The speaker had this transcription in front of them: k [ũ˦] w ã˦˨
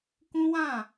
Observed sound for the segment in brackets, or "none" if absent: ũ˦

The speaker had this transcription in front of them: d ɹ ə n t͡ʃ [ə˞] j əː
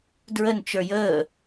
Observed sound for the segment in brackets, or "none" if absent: ə˞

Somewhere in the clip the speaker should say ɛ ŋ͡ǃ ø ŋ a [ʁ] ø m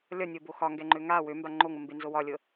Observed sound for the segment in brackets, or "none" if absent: w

